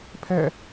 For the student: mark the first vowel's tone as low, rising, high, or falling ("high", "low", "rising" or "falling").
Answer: falling